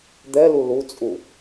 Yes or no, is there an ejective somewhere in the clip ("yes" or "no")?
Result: yes